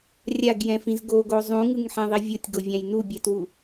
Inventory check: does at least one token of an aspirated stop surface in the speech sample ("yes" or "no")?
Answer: no